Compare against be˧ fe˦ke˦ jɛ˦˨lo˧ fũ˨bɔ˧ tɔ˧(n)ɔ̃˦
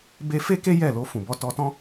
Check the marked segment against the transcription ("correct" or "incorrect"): incorrect